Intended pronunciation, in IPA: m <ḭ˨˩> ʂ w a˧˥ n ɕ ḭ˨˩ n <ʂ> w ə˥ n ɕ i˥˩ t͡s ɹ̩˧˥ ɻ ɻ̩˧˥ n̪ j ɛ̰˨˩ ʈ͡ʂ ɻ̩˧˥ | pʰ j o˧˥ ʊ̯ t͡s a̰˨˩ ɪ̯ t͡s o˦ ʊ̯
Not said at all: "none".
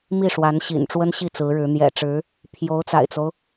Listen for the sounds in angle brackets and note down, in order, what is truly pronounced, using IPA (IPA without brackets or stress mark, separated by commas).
i˥˩, ʈ͡ʂ